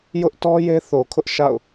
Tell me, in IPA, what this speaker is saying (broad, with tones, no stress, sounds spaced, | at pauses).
j ʊ˦ ʔ t ɔ˦ j e˦ θ o˨ kʰ ʊ˦ ʔ ʃ a̰˦˨ ʊ̯